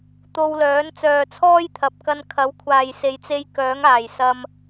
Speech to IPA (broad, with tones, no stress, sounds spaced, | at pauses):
t̪ o˧ w l œː˨˥ n t͡s œː˨ t͡sʰ ɔː˥ j t̪ʰ ɐ˨ p̚ k ɐ˧ n kʰ ɐ˨˥ w kʷʰ aː˨ j s e˨˧ j t͡s e˧ j k œː˨˥ ŋ aː˨˩ j s ɐ˨ m